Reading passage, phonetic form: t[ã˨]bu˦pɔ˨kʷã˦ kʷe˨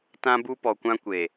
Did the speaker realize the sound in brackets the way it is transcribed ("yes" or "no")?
no